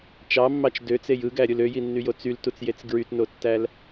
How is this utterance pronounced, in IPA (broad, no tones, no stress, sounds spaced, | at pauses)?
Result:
t͡ʃ ɑ mː ɑ t͡ʃ d ø t͡s e j ɯ ɡ æ ɾʲ ɯ l ø j i nː y j o t͡s y l t u t͡s j e t͡s ɡ ɹ y t n o tː æ l